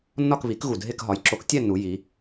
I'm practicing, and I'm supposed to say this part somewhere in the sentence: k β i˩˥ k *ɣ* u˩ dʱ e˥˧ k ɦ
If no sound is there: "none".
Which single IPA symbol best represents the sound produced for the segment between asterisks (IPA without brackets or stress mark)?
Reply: ɣ